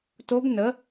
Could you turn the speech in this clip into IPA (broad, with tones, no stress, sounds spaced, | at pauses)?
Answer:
t o˦˥ ɡ n ə˨˥